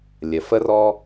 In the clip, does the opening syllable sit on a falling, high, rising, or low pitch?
low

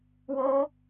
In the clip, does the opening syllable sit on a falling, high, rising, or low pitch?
high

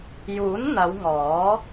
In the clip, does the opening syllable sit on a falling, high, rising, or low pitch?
rising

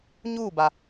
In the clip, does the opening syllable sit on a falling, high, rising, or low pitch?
falling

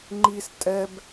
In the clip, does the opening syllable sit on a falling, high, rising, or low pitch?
high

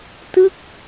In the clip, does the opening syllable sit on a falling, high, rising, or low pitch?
falling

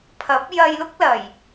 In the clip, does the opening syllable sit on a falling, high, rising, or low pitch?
rising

